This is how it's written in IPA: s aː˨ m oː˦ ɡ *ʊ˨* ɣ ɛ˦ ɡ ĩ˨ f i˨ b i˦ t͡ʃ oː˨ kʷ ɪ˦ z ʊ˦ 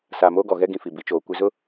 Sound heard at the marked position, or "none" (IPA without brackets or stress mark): ɔ˨